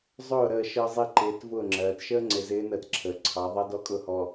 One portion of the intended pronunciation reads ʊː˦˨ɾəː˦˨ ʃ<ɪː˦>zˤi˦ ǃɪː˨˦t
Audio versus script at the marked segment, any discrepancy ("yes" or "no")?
yes